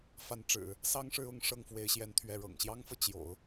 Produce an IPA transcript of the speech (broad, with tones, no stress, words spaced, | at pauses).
fa˧˥nʈ͡ʂɻ̩˨˩˦ | sɑ˥˧ŋʂɻ̩˥˧ʊ˥˧ŋ ʂɤ˥˩ŋfwe˧˥ɪ̯ɕjɛ˧˥nt̪ʰɥɛ˧˥ ɻɤ̰˨˩ŋɕjɑ˥ŋfɤ˨ t͡ɕjo̰˨˩˦ʊ̯